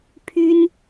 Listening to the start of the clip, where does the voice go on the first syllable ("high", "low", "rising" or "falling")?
high